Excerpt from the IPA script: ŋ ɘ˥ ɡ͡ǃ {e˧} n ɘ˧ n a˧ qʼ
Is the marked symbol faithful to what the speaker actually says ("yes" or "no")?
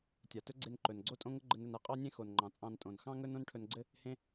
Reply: no